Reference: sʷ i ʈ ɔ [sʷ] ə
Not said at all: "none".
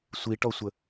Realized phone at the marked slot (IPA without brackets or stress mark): sʷ